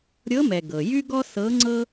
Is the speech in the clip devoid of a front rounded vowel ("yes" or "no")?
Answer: no